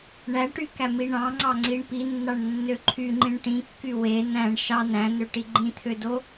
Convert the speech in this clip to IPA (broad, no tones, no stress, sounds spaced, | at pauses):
ɳ æ ʈ y k æ m i ɳ ɑ̃ ŋ͡ǀ ɑ ŋ͡ǀ i ɳ p i nː ɑ ɳ nː ø ǃʰ y ŋ͡ǃ ĩ ɳ ʈ ĩ kː y w e n æ̃ ɳ ʃ ɑ n æ̃ n ø ʈ i ɡ͡ǃ ĩ t̪ʰ ø d o